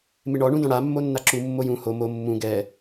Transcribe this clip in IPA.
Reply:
mɪɳɔɳũdɔ̃ ɽa mːonːaǁu mːojũ ho mo mːũ ɡɛ

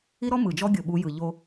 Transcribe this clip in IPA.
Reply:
i˦ɾɔ˦ mɯ˨ d͡ʒɔ˦ɡʲɤ˨ɓu˨˦jɯ˨ ʎo˦

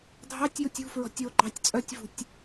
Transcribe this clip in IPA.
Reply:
dʱɑtʲjutʲ ṳfɹɔ̤tʲ oɡ͡ǃɑtʲ t͡sʼœtʲvṳtʲ

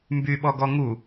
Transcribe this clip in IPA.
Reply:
mbyɓɔɡɔ ŋu

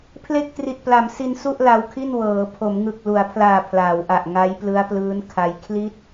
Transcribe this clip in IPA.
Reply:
pʰle˥˩k̚tri˨˩t̚pla˩˦msi˧n su˥˩ʔla˧wkʰi˥˩n wɤː˩˦ pʰo˩˦mŋɯ˨˩k̚lu˩˦a̯pʰlaː˨˩ pʰlaː˩˦wʔa˨˩ʔ ŋa˦˥jplɯ˦˥a̯plɯː˦˥nkʰa˧j kʰli˥˩t̚

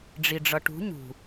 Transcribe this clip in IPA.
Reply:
ɖ͡ʐiɖ͡ʐʌʈṳ ɲṳ

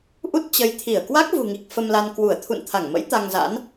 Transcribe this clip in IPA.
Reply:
ʔu˦˥t̚t͡ɕə˨˦jt̪ʰi˧˩ə̯ kwa˦˥k̚vṳ˨˩ŋi˨˩k̚ fə˧mla˧n kwu˧˩ə̯ t̪ʰṵ˧˨nt̪ʰa˧˩ŋmə̰˧˥j t̪a˧ŋza̰˧˥n

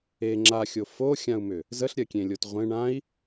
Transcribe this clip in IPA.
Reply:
e ŋ͡ǁaxʲo foxʲãu̯mʏ | zəɬɾʲɜkʲẽlʲot ʁʷẽ ɳãi̯

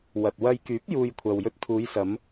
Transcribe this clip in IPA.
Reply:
wɐ˨t̚wɐ˧j kyː˨˥p̚juː˨j kʷʰɐ˨wjɵ˧t̚t̪ʰuː˨˧jsɐ˨˧m

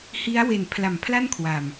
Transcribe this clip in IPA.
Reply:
hi˦˥a̯we˨˩n pʰla˨˩mpʰla˥˩nkʰwa˨˩m

